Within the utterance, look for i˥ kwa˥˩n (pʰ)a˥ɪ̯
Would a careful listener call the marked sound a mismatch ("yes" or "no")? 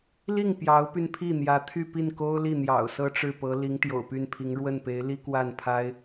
no